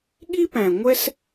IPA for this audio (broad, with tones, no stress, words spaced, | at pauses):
ɠi˥pæ̃˩ ŋʷɛ˥s